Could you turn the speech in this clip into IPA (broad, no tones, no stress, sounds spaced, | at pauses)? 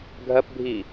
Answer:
ɡʱ ɜ p bʱ iː